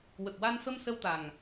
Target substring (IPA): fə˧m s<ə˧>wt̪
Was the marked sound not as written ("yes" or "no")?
no